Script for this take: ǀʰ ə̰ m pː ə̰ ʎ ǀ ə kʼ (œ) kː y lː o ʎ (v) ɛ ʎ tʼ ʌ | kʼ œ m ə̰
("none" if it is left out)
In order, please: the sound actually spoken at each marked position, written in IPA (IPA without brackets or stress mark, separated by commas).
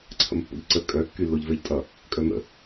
œ, v